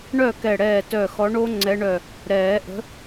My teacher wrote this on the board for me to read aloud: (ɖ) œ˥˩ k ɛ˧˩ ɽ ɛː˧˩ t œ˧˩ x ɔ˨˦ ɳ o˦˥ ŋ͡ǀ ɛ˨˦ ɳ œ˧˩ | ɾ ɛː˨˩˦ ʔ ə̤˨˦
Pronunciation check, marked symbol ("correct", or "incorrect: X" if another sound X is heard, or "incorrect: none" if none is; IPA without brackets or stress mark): incorrect: ɳ